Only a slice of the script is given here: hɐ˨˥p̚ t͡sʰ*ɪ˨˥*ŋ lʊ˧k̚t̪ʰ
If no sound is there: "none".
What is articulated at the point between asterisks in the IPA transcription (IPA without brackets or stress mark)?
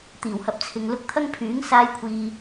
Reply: ɪ˨